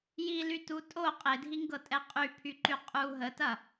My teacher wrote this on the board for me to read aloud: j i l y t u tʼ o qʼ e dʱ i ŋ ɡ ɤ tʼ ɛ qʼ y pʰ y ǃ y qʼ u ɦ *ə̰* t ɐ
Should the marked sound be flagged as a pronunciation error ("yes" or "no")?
yes